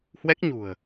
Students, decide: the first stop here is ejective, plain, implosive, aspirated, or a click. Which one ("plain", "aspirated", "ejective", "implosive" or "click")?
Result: plain